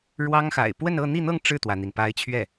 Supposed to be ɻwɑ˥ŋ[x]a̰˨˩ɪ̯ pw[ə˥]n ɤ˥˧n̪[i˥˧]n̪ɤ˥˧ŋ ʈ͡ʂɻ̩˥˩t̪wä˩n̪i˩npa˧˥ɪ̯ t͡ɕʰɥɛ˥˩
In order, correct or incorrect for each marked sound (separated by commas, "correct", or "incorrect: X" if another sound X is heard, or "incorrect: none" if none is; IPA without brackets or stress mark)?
correct, incorrect: ə˥˧, correct